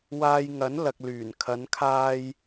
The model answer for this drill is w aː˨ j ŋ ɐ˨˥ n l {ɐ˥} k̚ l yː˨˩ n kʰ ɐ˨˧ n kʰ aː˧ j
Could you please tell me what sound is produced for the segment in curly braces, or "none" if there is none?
ɐ˨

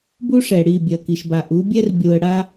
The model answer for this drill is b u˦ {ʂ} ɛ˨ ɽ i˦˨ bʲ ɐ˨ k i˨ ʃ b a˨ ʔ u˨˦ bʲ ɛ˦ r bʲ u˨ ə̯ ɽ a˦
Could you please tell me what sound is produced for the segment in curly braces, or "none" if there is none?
ʂ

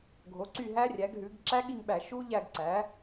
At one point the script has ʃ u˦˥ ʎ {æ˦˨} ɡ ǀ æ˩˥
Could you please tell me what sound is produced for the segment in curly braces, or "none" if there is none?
æ˦˨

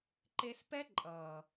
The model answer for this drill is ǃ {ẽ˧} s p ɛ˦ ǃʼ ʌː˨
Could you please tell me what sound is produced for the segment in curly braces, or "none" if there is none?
e˧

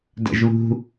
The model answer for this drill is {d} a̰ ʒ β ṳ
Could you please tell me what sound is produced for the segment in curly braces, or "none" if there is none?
d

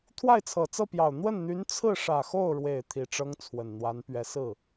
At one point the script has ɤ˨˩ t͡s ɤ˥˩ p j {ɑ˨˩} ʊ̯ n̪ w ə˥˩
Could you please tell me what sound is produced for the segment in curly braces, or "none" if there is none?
ɑ˨˩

